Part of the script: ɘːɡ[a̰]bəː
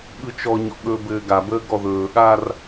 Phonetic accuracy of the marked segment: incorrect: a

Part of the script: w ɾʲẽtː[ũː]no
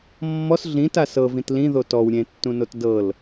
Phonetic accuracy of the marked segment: incorrect: ũ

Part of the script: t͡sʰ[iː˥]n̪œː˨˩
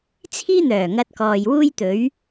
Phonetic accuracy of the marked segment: correct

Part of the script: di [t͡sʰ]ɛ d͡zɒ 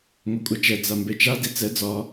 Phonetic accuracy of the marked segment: incorrect: t͡s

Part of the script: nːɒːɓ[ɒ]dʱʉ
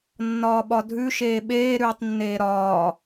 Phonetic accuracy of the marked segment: correct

